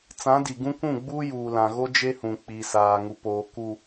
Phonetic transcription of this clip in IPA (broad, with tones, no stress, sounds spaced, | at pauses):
t͡s ã˨˦ d i˨ ɡ ũ˦ kʷ ũ˦˨ ɡ͡b uː˦ j uː˨ l ã˨ ɣ o˦ d͡ʒ e˦ h ũ˨ k͡p i˨ s aː˨ ŋ u˨ p oː˨ k u˨